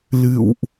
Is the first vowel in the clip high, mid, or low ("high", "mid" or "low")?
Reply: high